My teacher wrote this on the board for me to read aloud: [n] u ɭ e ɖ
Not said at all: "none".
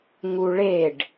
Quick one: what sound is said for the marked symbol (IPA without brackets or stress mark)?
ŋ